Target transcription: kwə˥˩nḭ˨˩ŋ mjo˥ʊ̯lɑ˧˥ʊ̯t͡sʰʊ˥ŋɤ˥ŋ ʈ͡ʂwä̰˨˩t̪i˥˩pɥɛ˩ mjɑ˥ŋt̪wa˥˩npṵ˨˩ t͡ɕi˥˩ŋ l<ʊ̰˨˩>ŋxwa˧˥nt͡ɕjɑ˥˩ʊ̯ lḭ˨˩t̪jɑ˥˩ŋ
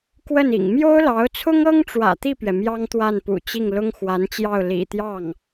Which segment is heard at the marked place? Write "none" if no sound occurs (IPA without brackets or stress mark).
ʊ˥